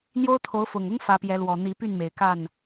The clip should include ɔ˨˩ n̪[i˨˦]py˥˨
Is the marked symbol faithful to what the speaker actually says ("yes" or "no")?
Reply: yes